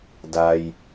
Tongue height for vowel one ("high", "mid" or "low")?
low